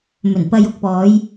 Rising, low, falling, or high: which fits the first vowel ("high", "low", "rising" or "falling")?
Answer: low